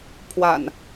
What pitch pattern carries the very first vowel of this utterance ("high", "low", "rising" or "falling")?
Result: low